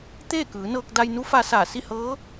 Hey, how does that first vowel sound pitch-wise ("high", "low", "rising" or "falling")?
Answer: falling